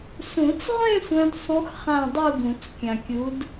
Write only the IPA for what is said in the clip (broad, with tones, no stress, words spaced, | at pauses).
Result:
sũ˨˩˦t͡sʁʷẽ˥˧ sʷœ̃˦˥dsˤũ˦˥x χã˥˧dˤu˥˧ɡũ˨˩˦t͡s kʲã˨kʲu˨˦d